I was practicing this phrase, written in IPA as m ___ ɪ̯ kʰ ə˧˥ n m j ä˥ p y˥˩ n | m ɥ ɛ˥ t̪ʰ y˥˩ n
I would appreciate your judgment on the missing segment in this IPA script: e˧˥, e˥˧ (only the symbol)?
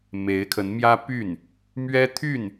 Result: e˧˥